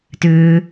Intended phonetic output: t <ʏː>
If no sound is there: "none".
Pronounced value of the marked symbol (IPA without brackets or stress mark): ʏː